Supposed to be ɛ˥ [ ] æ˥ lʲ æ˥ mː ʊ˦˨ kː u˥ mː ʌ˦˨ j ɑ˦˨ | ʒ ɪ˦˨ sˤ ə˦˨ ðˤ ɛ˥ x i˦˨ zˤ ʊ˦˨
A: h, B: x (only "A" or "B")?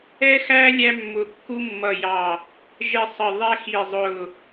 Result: B